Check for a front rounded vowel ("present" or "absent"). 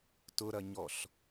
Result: absent